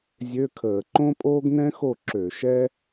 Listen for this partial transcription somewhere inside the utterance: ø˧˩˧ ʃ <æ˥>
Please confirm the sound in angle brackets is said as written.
no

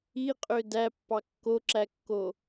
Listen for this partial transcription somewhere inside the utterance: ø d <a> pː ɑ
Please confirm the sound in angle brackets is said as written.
no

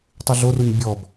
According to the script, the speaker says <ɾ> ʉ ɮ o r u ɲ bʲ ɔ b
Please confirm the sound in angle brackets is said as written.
no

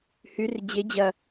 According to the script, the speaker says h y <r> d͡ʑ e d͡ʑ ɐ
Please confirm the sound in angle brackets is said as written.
yes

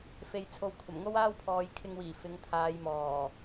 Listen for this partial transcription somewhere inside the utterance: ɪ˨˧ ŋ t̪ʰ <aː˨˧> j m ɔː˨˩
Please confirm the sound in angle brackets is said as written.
yes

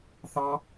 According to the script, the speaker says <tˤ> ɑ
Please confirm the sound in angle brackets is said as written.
no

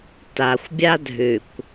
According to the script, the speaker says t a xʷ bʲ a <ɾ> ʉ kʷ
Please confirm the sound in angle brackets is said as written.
no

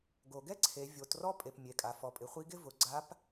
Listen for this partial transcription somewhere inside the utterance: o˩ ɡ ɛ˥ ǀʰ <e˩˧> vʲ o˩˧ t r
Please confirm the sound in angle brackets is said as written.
yes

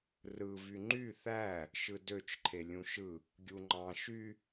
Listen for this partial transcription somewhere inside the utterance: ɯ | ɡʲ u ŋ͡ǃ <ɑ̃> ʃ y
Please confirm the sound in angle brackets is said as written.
yes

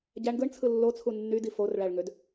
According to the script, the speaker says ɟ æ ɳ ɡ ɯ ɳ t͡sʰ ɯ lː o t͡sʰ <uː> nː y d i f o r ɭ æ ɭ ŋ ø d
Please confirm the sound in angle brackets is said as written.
no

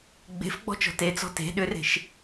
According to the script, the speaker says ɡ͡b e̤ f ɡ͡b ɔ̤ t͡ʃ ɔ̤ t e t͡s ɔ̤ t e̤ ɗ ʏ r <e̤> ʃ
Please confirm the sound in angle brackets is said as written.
yes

